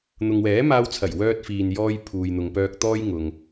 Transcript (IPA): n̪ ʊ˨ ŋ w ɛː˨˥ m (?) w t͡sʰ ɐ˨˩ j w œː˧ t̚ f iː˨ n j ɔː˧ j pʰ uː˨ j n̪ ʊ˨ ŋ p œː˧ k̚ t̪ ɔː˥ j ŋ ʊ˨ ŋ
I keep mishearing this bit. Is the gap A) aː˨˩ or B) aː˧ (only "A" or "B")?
B